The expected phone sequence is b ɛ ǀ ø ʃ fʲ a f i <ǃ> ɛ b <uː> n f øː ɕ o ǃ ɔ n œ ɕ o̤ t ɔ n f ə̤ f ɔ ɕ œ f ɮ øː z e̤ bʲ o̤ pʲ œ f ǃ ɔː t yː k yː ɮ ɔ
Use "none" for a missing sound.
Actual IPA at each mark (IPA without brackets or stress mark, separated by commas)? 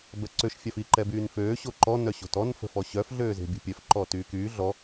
ǃ, yː